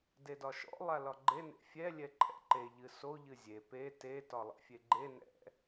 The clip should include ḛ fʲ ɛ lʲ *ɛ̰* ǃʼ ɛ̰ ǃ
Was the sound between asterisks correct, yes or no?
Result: no